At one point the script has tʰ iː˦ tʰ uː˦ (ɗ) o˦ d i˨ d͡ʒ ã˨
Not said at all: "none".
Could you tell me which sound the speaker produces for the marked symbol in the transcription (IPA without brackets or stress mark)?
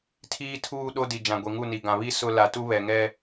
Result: ɗ